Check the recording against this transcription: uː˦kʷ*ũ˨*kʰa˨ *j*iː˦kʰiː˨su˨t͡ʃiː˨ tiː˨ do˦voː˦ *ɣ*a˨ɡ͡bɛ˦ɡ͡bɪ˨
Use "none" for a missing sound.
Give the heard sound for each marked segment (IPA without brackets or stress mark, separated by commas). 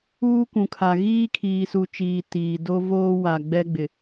ũ˨, ɣ, w